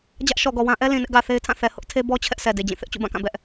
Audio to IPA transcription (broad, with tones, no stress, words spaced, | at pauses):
d͡ʑä˦ʔʃɔ˨ɡɔ˨wã˦ ʔɛ˦ lĩ˨nɪ˦ʔ ɡä˨θe˦ɪ̯tʰã˦˨ θɛ˨ hʊ˦ʔtʰe˦bɔ˦ t͡ɕʰɛ˦ʔsɛ˨ de˨d͡ʑĩ˦˨ θɪ˦ʔt͡ɕṵ˦˨bã˦˨kã˦˨ bɛ˦ʔ